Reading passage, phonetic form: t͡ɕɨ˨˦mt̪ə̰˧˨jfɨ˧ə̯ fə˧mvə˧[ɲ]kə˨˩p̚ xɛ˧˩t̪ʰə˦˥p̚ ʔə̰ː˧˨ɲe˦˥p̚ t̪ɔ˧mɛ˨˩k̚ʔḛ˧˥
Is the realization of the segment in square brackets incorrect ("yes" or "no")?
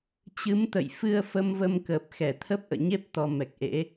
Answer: yes